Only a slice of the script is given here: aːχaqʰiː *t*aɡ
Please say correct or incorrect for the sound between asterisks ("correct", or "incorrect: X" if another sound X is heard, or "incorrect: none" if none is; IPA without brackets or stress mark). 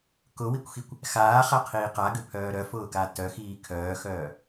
incorrect: q